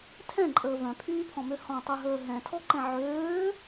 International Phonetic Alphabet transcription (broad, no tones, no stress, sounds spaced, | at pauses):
tʰ ɛ̃ ǃʼ əː v œ̃ pʰ yː pʰ ɔ̃ m ø h ɔ̃ tˤ ø ɦ əː ɦ ɛ̃ tʰ ɔ ǃ ɛ̃ ʕ øː